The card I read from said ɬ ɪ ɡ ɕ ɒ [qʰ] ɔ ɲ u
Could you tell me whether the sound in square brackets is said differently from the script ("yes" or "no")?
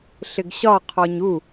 no